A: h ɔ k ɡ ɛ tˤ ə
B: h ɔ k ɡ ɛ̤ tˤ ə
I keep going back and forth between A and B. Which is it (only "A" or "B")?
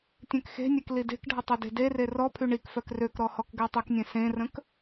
A